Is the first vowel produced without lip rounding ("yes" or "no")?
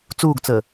no